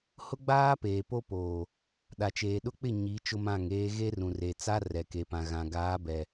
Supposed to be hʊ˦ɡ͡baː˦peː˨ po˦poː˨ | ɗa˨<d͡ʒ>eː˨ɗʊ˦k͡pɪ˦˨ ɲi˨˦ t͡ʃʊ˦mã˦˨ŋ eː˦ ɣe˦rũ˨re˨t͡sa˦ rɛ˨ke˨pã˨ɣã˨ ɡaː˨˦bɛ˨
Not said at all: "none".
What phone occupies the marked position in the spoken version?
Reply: t͡ʃ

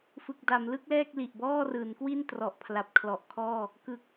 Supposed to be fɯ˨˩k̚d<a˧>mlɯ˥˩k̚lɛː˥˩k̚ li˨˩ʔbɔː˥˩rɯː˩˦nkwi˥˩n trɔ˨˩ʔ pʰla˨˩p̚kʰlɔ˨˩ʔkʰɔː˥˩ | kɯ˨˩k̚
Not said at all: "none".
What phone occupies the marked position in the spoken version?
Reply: a˩˦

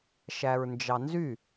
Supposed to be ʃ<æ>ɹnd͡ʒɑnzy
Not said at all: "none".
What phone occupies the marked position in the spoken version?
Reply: æ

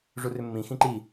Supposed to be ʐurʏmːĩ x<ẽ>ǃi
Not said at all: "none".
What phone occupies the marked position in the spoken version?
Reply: ĩ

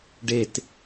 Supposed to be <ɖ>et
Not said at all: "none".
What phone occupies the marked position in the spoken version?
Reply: ɖ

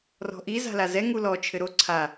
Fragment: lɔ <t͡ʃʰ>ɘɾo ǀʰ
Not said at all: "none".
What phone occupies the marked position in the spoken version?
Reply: t͡ʃʰ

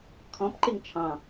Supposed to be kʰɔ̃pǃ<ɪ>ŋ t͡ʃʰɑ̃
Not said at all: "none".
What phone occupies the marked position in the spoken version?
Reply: ɪ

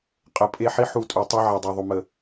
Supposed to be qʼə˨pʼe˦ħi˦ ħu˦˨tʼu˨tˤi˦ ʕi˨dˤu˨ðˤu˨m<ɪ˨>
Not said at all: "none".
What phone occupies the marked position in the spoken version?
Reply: ə˨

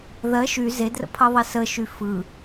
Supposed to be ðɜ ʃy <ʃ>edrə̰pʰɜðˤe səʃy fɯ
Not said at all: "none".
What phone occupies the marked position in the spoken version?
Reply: z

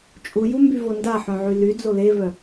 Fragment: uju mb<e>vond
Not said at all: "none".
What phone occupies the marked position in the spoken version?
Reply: y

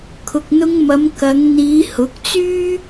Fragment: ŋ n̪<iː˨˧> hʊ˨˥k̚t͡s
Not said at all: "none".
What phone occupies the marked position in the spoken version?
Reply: iː˨˧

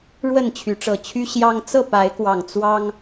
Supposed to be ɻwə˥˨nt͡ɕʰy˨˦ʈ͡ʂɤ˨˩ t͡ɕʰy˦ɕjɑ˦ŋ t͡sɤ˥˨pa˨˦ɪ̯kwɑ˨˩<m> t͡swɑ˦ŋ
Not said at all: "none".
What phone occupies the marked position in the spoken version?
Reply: ŋ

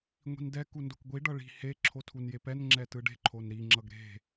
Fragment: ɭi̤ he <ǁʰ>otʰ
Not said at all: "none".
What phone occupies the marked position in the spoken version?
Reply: ǁʰ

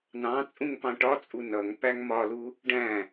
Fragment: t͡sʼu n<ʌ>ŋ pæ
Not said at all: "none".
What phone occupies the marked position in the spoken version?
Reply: ʌ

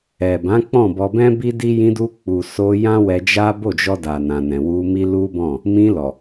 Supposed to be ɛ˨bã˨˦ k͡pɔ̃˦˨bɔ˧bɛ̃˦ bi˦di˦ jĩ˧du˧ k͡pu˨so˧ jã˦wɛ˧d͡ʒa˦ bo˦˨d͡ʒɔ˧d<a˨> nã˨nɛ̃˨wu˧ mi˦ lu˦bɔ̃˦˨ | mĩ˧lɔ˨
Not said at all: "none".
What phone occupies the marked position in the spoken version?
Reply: a˨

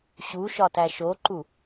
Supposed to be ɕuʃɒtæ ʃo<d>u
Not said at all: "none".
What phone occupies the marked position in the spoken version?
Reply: ǃ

